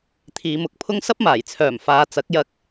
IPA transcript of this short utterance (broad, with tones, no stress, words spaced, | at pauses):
t̪ʰiː˨˧mʊ˨˥k̚pʰʊ˥ŋ sɐ˥p̚maː˨˩jt͡sʰœː˨˩m faː˨˧t͡sɐ˨˥k̚jɐ˧k̚